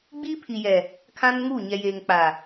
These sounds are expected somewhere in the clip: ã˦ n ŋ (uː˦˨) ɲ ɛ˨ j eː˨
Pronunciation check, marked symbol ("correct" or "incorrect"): correct